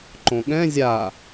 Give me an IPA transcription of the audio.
ǃ õ ɠ ɛ̃ zʲ a

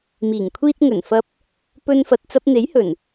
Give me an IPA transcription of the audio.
m iː˨˩ ŋ kʷʰ iː˧ t̚ ŋ ɵ˨˩ n f ɐ˧ p̚ | p ɵ˧ n f ɐ˨ t̚ t͡s ɐ˧ p̚ n̪ e˨˥ j h ɵ˨˩ n

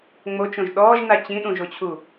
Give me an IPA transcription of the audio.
ŋ͡m o t͡ʃ õ ʒ ɗ ɔː ʒ n a t͡ɕ ĩ ɗ ũ ʒ o t͡ɕʰ u

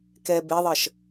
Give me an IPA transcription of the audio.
k ɛ b e ðˤ ɜ ʃ

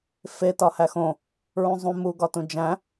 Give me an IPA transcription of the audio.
f e t ɒ h æ x õ | ɹ ũ zˤ ũ m u ɡ ɒ t ũ d͡ʒ æ̃

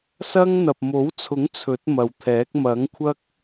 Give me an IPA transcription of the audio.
s ɐ˥ ŋ n̪ ɐ˨ p̚ m o˨˥ w t͡sʰ ʊ˨˥ ŋ t͡sʰ ɵ˨˥ t̚ m ɐ˨ w t̪ʰ ɛː˨˥ k̚ m ɐ˨˥ ŋ kʷʰ ɐ˥ k̚

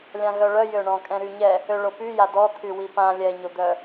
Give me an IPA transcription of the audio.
lʲ ã ɣ œ ɭ œ j ø ɳ ɔ̃ kʼ ɛ̃ ɾ y ɲ ɛ | ø ɭ o p y j a d ɔ t̪ʰ y w i p ã lʲ ɛ ɲ o d̪ œ

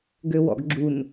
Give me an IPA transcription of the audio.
ɡ ø w ɔ̰ ɡ ɡ͡ǁ u n

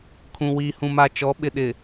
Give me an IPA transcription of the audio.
kʰ ũ˨ w iː˨ h ũ˨ m a˨ t͡ʃ ɔ˨˦ ɓ ɪ˨ ɗ ɪ˨

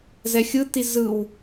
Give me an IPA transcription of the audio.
z ɛ xʲ ɯ t i z ɯ w

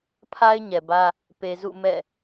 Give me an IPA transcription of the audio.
pʰ a˦ ɪ̯ ɲ ɛ˨ b ä˦ | p e˨ z ṵ˦˨ m ɛ̰˦˨

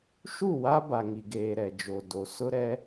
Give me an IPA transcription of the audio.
ʃ u˦˨ w a˦ b a˨ ŋ i˨ ɡ eː˨ ɾ ɛ˨ d͡ʒ o˨ d o˨˦ s ʊ˦ ɾ ɛ˦

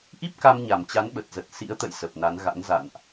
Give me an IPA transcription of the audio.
ʔ i˦˥ p̚ k a˧ m ɲ a˨˩ m t͡ɕ a˨˦ n ɓ ə˨˩ t̚ z ə˨˩ t̚ s ḭ˧˥ ə̯ t̪ ə̰˧˨ j s ə˨˩ p̚ n a˨˦ n ɣ a̰˧˥ n z a̰˧˨ n ʔ

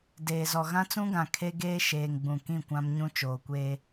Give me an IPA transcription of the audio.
d eː˨ z ɔ˨ ɣ ã˦ t͡s ũ˦ ɡ ã˨ kʰ e˦ ɡ eː˦ ʃ eː˨ ŋ ɡ͡b ũ˨ k ĩ˦˨ kʷ ã˦ m ɲ ũ˦ t͡ʃ oː˨ kʷ eː˦

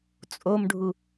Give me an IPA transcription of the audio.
t͡sʼ o m ɖʱ u

